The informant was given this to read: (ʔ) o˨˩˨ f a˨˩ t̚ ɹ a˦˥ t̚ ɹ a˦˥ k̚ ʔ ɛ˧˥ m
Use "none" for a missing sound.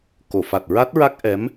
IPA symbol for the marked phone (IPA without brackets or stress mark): k